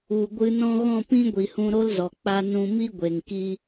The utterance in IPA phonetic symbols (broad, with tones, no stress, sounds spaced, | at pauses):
u˨ ɡʷ ɨ˧ n ɔ̃˦ ɣ ɔ̃˦˨ p ĩ˦ ɡʷ i˨ h ũ˧ ɾ o˦ l z ɔ˨ k͡p a˧ n ũ˧ m i˦ ɡʷ e˨ ŋ k i˦